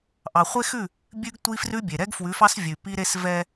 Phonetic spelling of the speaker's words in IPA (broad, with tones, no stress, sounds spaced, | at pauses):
ʔ ɑ˨ χʷ e˦ x ʉ˦˨ | bʲ ʉ˦ ɡ tʷ i˦ f r ʉ˦ bʲ e˨ ɾ ɛ˦ ɡ f w ʉ˨˦ f ɑ˦ s vʲ ʉ˨ p i˦ ɾ e˦ s v ɛ˦